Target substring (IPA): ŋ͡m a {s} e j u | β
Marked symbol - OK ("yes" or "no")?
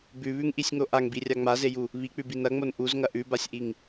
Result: no